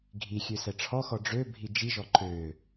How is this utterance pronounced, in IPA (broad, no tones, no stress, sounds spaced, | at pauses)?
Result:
ɡʱ i xʲ ø s ɛ ʈ͡ʂʰ ɔ x ɔ ɖ͡ʐ ø bʱ i d͡ʒ i ʒ ɔ ǃ ø